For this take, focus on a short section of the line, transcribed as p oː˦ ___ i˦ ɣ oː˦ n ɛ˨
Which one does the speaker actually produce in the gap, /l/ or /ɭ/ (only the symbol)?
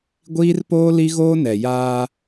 l